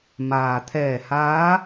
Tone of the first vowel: low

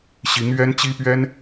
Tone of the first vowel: rising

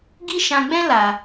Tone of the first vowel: high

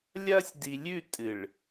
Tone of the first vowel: high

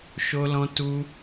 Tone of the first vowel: high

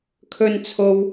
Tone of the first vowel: low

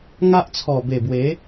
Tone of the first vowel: high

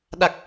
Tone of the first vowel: low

